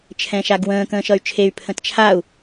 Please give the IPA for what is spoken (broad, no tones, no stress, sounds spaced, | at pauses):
t͡ʃʰ ɛ̃ ʃ a ɡ w ə̃ː k ə̃ː ʃ ʌ y̯ t͡ʃʰ e y̯ pʰ ə̃ t t͡ʃʰ a u̯